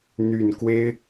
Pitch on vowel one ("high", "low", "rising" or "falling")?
low